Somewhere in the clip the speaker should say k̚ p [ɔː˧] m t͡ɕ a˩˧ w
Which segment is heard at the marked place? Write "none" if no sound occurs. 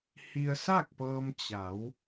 ɤː˧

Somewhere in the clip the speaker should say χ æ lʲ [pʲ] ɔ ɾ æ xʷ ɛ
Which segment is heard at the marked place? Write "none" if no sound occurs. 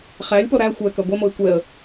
p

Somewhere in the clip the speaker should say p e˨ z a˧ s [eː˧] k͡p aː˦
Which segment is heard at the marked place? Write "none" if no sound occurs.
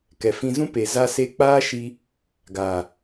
e˧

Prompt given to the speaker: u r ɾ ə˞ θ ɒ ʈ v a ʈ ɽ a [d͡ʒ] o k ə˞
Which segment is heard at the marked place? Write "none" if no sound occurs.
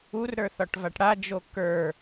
d͡ʒ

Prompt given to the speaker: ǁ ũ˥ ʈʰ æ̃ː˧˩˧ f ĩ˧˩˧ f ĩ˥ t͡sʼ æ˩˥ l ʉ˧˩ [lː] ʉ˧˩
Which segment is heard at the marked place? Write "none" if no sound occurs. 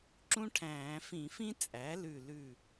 l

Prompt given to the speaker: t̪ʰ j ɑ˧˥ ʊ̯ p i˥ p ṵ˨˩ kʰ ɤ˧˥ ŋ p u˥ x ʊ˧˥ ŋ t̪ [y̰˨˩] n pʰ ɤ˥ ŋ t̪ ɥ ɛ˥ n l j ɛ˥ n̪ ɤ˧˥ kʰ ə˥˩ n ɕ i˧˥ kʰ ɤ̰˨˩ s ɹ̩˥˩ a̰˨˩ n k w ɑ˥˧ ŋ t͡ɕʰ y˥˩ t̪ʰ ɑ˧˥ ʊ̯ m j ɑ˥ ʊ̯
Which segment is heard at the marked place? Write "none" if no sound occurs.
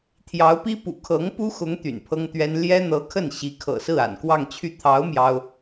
y̰˨˩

